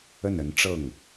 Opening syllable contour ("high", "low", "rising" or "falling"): falling